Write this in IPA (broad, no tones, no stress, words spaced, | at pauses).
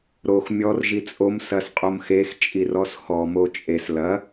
ɾox mʲɔr ʒit͡sʼom sɐsqʼomxex t͡ʃʼirɔsxɔ mot͡ʃʼes lɐ